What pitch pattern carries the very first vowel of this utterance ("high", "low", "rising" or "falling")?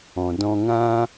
low